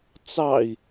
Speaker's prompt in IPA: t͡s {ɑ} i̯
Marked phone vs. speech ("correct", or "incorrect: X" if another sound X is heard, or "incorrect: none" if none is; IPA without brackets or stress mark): correct